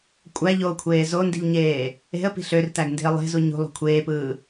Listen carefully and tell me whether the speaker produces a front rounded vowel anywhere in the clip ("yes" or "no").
yes